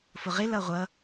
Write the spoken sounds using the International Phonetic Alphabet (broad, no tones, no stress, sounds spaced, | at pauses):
f ʊ ʁ ɪ l ʌ ʁʷ ʌ